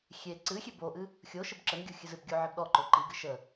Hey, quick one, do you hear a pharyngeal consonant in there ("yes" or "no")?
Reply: yes